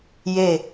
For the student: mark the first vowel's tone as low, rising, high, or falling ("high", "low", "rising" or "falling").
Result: falling